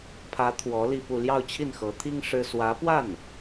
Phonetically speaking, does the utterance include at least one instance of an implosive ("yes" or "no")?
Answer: no